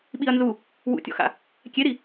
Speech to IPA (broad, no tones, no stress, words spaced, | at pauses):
ɓiɐ̯nzu | wṵtʲɔ̰xa̰ | kʲeɾi